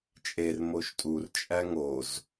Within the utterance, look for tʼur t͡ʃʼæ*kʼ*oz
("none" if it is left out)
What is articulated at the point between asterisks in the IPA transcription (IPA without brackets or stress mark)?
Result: ŋ